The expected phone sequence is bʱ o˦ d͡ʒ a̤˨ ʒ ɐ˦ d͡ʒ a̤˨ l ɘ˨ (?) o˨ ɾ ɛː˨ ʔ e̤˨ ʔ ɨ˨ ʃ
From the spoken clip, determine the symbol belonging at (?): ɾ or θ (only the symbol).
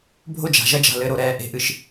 ɾ